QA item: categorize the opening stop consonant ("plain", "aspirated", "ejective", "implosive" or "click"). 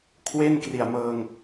aspirated